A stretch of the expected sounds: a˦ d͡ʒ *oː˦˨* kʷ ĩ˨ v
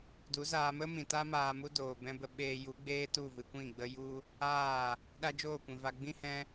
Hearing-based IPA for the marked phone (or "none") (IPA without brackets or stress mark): oː˦˨